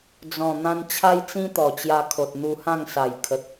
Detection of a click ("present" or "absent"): absent